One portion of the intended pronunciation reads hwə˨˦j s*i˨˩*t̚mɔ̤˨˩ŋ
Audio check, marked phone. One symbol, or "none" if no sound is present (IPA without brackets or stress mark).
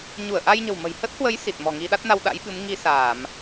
i˨˩